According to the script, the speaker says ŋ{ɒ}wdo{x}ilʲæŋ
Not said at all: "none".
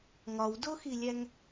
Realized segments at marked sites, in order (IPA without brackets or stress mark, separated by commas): ɒ, x